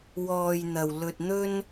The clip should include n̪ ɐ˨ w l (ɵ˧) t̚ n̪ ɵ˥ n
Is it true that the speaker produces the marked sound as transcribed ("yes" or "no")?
yes